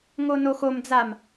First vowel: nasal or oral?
oral